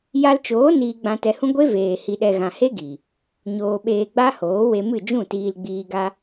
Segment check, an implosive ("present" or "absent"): present